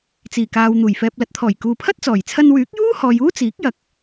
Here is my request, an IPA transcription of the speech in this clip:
t͡siː˨˩kaː˨w n̪uː˨˩jfɛː˨p̚lɐ˨˥t̚t̪ʰɔː˨˩j kuː˨pʰɐ˥t̚t͡sɔː˨˩jt͡sʰɐ˧n wyː˨˥k̚juː˥hɔː˨j uː˥t͡siː˨˥k̚jɐ˨˥k̚

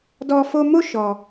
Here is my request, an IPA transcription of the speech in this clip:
dɔ˦ fo˧ mo˦ ʃɔ˧

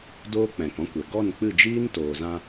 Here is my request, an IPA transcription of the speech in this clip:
doː˦k͡pɛ̃˨k ɔ̃˦kʷɛ˨ ɡɔ˦˨nk͡pɨ˦˨ d͡ʒiː˦ntoː˨zã˧

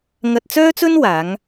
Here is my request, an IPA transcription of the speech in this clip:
ŋɐ˧t̚t͡sœː˥t͡sɵ˥nwaː˨˧ŋ

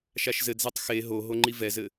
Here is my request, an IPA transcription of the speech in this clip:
ʃaʃzɘdzɛtˤ xe ɦoɦo ŋ͡ǃivɛzɘ

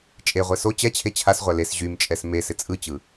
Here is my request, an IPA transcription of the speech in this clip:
t͡ʃʼeʁʷe so t͡ɕɛt͡ɕʰe t͡ɕʰasʁʷæ les ʑymt͡ʃʼɛs mesɪ t͡sʼɯt͡ɕɯ

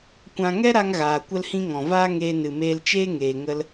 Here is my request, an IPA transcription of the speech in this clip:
kʷã˧ ŋɛ˦ɾa˧ŋɣaː˨ kʷə˧lhĩ˧ ŋɔ̃˨vaː˦ŋeː˧ nɨ˨meː˧lt͡ʃeː˦ŋeː˨ ŋə˧l

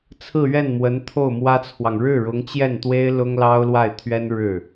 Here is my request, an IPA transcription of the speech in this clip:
t͡sʰɹ̩˥˧ɥɛ˥˩nmwə˧˥n t̪ʰo˥˩ʊ̯mwä˥t͡sʰwɑ˨ŋ ɻɻ̩˥˩ɻʊ˧˥ŋt͡ɕjɛ˥˩nt̪we˥ɪ̯ lʊ˥ŋlɑ˥ʊ̯lwa˥˩ɪ̯t̪ʰɥɛ˥n ɻɻ̩˥˩

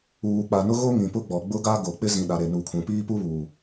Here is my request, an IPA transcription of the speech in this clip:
uː˨k͡pa˨nʊ˦ɣo˦ ŋĩ˨pʊ˦ ɡ͡bɔ˨ɡ͡bʊ˦ɡa˦ ɡo˨ k͡pɪ˦ zĩ˨ɗa˨ ɾe˨nu˨kʰũ˨ piː˦pu˦βuː˨

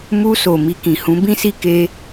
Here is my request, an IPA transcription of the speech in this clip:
mu˧so˨ mi˧kĩ˨hũ˨˦ bĩ˧si˧ ke˧

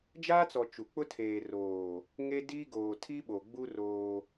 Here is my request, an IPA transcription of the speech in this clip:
d͡ʒaː˦t͡sɔ˨ t͡ʃu˨ k͡pʊ˦tʰeː˨roː˨ | ŋe˦diː˦ ɡoː˨tʰi˦ɓo˨ɡ͡bu˦ roː˦

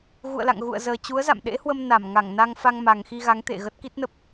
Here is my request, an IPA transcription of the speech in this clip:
ɣṵ˧˨ə̯la̰˧˨ŋɣṵ˧˨ə̯zəː˨˩ t͡ɕu˨˦ə̯za̰˧˨mɗḛ˧˥hwə˧m na˧˩m ŋa˧˩ŋna˧ŋ fa˧ŋma˨˩ŋxi˧ ɣa˨˦ŋt̪ḛ˧˨ ɣə˦˥t̚ki˦˥t̚nə˦˥p̚

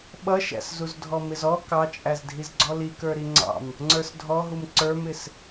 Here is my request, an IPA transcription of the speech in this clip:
ɓʌʃæ̰szuz dʱɔmɪzɔ kɑt͡ʃʼæzdʱiz ɡ͡ǀɔlikə˞ ɾiŋ͡ǀɑ̰m | ŋ͡ǀə˞sdʱɔɦum ǀə˞mɪs

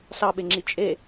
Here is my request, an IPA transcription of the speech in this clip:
sɑɓeŋ͡ǁi t͡ʃʼe

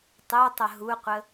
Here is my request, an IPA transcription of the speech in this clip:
tˤøtˤə ɦuqʷə

